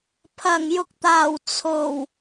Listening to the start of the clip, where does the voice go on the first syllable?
low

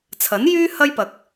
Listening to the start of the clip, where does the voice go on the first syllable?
rising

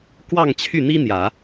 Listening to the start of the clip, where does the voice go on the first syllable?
falling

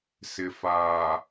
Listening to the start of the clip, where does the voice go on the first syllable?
low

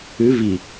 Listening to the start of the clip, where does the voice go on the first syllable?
rising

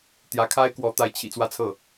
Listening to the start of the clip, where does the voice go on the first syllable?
rising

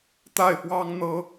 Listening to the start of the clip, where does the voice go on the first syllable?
falling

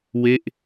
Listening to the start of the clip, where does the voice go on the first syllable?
falling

